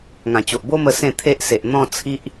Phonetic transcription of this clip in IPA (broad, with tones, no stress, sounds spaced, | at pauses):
ŋ ã˨˩ t͡ɕ o˨ ʔ b o˦ m ə˧ s ẽ˥˧ t̪ʰ e˦ ʔ s e˨ ʔ n̪ ɔ̃˥˧ t͡sʰ i˦ ʔ